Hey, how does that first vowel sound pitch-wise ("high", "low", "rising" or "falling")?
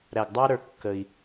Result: low